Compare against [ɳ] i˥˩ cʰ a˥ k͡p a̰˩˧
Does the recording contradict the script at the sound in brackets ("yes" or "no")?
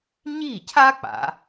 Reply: yes